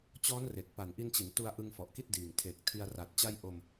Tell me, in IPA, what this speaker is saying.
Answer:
t͡ɕɔː˦˥nre˨˩k̚pa˨˩nʔi˧n t͡ɕi˩˦ntu˧a̯ʔɯ˧ŋ fɔ˨˩ʔki˥˩t̚diː˨˩ŋ tʰe˨˩k̚ tʰi˧a̯ra˨˩t̚t͡ɕa˥˩j ʔo˧m

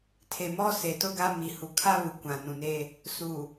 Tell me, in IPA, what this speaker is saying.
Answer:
tʰe˨mɔ˦ se˨tʊ˦ɡa˦ mi˨hu˨kʰa˦ βu˨kʷã˨nũ˨neː˦ | suː˨

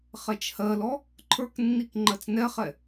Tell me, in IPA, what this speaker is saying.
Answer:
χɛt͡ʃhɜlɔ | ǃʰə˞knːik ŋ͡ǃɜt͡snɛχɛ

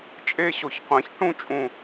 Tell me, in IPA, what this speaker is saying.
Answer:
t͡ʃʼe˥ɕo˧˩˧çqʷɛ̃˧˩˧ç ʈũ˥t͡ʃʼũ˧˩

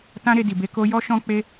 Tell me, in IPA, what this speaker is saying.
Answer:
tã˦ɾe˧ di˨be˧ ko˦ jɔ˦ʃɔ̃˦k͡pe˦

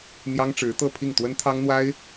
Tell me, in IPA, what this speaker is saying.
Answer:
n̪jɑ˥ŋʈ͡ʂɻ̩˧˥ t̪ɤ˥˧pʰi˥˩ŋ t̪wə˥nt̪ʰɑ˥ŋn̪wa˥ɪ̯

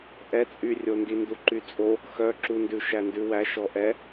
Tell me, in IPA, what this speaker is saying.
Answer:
ʔɛt͡sʼyrʲondi nduǃyt͡sʼo | xœ ǁundʉ ʃændʉwæ ʃɔʔɛ

